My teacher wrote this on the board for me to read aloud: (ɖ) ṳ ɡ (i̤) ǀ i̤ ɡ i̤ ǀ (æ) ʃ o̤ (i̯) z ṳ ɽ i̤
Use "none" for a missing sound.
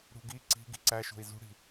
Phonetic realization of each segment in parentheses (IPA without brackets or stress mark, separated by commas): ɽ, i, æ, i̯